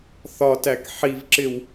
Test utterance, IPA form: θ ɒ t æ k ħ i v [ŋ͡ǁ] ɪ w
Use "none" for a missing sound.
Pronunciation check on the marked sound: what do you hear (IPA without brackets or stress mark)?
ǁ